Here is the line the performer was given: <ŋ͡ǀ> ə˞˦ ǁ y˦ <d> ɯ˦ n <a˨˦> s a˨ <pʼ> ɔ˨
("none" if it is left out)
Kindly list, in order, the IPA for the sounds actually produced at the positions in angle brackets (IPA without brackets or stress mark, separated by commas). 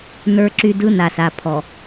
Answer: n, d, a˨, pʰ